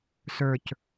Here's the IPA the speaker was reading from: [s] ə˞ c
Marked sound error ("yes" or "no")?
no